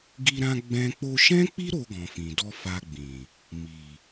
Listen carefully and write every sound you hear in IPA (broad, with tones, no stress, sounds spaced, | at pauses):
ɡ i˧ ɾ ã˧ ɡ͡b ɛ̃˦ k͡p o˧ ʃ ɛ̃˦ k͡p i˦ ɾ o˧ ɡ ɔ̃˨ f ĩ˨ d ɔ˧ f a˧ ɡ͡b ĩ˨ | m i˨